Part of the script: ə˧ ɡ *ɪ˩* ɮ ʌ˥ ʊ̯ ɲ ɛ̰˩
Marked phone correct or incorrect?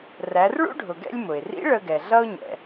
incorrect